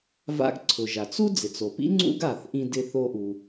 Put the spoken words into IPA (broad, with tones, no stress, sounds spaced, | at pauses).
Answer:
v a̰˧ ɡ ǀʰ ʊ˩ ʒ a˩ t͡s u˥ d͡z ɪ˩ t͡s o˩ p ḭ˥ ŋ͡ǀ ṵ˥ ɡ a˩ θ ʔ ĩ˧ d ɪ˧ θ o˧ ʔ u˩